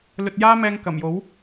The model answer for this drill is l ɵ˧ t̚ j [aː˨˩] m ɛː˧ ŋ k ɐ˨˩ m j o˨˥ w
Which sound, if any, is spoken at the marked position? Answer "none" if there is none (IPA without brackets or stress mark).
aː˥